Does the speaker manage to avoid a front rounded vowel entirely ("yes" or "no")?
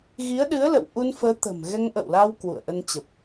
yes